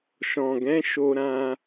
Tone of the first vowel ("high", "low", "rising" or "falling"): low